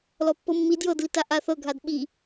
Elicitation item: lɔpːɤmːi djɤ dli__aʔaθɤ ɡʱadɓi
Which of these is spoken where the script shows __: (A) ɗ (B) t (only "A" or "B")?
B